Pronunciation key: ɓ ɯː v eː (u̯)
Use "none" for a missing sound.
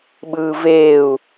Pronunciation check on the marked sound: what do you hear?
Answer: u̯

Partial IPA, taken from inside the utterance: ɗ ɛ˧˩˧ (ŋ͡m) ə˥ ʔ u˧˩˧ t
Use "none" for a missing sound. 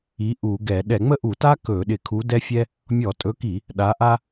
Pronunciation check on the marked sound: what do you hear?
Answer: ŋ͡m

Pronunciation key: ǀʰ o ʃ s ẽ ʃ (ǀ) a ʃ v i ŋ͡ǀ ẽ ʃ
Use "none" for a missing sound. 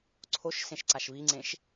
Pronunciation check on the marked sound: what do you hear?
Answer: ǀ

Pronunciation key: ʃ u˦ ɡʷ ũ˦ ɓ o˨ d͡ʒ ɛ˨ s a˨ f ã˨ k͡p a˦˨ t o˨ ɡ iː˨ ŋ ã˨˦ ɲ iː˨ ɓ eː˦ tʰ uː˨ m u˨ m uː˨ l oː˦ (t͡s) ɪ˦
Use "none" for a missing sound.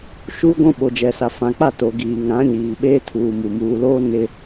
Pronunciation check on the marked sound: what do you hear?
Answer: n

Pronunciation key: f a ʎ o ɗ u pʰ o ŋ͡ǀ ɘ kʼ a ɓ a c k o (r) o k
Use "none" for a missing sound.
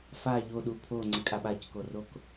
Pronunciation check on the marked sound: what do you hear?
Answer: r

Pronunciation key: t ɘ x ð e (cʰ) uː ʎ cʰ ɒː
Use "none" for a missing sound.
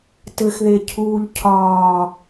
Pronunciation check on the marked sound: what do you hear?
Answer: cʰ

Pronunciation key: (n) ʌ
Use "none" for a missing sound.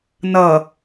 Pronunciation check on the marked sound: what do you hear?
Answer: n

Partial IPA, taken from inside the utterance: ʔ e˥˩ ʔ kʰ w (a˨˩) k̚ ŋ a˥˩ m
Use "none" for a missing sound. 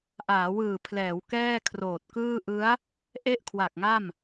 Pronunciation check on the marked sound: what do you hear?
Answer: a˨˩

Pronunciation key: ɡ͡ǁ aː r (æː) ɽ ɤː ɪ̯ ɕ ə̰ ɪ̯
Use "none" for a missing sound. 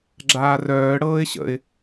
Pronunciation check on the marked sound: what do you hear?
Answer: œː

